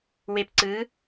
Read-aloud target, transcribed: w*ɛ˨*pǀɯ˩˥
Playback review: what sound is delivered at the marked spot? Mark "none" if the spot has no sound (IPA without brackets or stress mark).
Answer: e˨